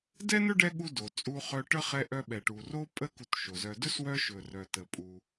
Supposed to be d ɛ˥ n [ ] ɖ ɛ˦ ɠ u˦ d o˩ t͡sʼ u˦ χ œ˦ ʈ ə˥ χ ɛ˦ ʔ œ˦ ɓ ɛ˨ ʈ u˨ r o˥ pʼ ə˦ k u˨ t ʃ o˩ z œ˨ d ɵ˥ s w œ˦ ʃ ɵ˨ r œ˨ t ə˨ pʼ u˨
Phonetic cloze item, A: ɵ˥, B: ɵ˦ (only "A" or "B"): A